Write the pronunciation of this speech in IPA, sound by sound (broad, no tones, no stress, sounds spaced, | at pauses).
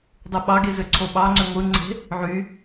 dˤ ɯ ɓ ɑ ɡ e z ø ǀʰ o ɓ ɑ ŋ͡ǀ ø ŋʷ ɯ ŋ͡ǀ e̤ | ʕ y